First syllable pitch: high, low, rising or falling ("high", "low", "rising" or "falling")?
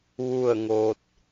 falling